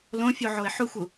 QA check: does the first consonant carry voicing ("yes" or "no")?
yes